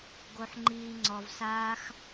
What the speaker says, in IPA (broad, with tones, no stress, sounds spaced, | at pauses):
ɡ o˧ ħ ŋ͡ǃ iː˧ ŋ͡ǀ ɔ˧ v s aː˦ x